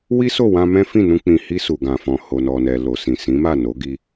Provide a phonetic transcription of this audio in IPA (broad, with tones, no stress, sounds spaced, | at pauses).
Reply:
w i˦ s o˦˨ w ã˧ m ɛ̃˦ f ĩ˦˨ n ũ˧ k͡p ĩ˨ h i˧ s u˨ ɡ ã˨ f ɔ̃˨ h o˨ n ɔ˨ n ɛ˨ l o˨ s ĩ˨ s ĩ˨˦ m a˦˨ n o˨˦ ɡ i˧